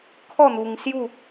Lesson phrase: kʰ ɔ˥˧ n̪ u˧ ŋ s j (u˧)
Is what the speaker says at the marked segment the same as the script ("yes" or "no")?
no